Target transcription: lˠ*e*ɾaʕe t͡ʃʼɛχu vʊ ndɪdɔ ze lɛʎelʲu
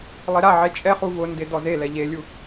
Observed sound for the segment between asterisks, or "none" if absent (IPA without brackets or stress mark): e